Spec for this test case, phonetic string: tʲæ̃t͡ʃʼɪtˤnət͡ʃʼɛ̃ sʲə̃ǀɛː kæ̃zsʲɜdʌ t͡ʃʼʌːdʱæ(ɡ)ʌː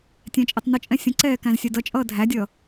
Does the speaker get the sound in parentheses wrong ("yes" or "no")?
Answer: yes